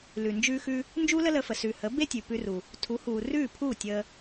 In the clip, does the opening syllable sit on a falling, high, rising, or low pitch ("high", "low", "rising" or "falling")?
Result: low